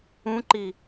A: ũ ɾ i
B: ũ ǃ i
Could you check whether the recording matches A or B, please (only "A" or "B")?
B